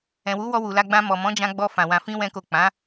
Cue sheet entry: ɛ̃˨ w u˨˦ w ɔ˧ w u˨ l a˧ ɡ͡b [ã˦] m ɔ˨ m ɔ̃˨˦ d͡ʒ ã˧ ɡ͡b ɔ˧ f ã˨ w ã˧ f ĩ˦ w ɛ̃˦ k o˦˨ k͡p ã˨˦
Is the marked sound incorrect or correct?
incorrect